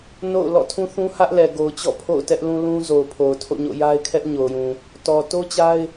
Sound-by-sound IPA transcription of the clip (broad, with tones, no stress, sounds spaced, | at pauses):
n o̰˦˨ ʊ̯ l ɔ̰˦˨ tʰ ũ˦ θ ũ˦ h ä˦ ʔ l ɛ˨ ɡ o˨ ʊ̯ t͡ɕ ɔ̰˦˨ pʰ o̰˦˨ ʊ̯ t ɛ˦ ʔ l ũ˦ l ũ˦ z o˨ ʊ̯ pʰ o˨ ʊ̯ tʰ o̰˦˨ ɲ o̰˦˨ j a˦ ɪ̯ kʰ ɛ˦ ʔ ɲ o˨ ʊ̯ j ũ˨ | t ɔ˨ t o˦ t͡ɕ a˦ ɪ̯